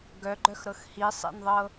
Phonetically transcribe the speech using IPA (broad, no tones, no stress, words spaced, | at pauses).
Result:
ɡœɡ͡ǃœxɾɤx hisˤḛnðˤɤ